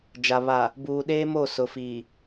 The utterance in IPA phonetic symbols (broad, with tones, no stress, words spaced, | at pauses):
d͡ʒa˨ βa˨ | buː˨ɗeː˦mo˦˨ sʊ˨fiː˨